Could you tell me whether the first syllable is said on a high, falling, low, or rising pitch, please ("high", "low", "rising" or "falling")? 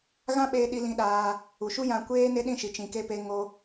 high